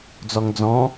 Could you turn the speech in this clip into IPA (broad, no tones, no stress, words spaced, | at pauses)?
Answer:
d͡zɔŋd͡zɔ̃